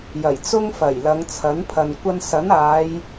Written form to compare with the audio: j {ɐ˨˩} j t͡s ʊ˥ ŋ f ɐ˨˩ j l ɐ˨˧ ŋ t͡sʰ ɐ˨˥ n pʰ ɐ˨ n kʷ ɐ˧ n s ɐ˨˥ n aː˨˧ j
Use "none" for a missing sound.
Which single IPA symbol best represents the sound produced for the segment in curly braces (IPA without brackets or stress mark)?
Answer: ɐ˨˩